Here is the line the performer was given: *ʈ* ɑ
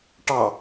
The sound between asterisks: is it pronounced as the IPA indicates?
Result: yes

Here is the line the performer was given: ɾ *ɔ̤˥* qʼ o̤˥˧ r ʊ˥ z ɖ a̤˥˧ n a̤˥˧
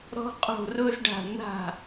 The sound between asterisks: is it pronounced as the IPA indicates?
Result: yes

